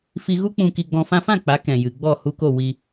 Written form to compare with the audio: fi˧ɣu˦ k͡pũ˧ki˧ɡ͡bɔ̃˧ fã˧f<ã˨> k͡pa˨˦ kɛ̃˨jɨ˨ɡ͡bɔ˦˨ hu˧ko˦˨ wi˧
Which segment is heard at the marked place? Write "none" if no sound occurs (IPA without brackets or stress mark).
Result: ã˦˨